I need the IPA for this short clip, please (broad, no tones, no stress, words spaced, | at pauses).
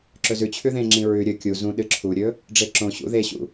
ǁɵzʉt͡ɕʰʉ ðẽŋ͡ǁĩ ɹʉ ɾʲɵ kʲu zũɗɨ ǁʰuɾʲɵ | ɖ͡ʐeǁõɕṵ ðeɕṵ